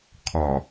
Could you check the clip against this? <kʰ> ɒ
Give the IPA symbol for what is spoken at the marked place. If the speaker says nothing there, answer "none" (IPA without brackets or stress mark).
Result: kʰ